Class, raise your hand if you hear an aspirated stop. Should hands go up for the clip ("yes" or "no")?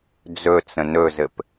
no